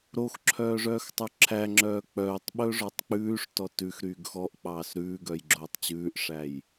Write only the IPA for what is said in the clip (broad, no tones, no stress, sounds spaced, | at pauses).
ɾ o x ǁʰ œː ʐ œː x tˤ ʉ ǁʰ æ ŋ͡ǁ œː k͡p œː tˤ ɓ ɵ ʐ ɔ tˤ k͡p ʉː ʂ t ɔ t ʉ x ɾ yː ɡ x ɔ ʔ k͡p ɑː s ɾ ʉː ɡ œ j ɡ͡ǁ oː tˤ t͡ɕ ʉː ʔ ʂ æ j